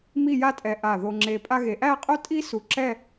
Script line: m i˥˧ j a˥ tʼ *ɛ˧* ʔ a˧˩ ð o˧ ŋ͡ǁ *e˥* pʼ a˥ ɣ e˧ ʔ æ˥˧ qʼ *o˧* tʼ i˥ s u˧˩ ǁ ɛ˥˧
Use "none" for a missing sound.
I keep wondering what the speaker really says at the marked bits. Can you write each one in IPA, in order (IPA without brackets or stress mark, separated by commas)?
ɛ˧, e˧, o˥